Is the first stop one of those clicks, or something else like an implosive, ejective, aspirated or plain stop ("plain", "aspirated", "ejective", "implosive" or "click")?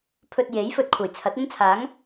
aspirated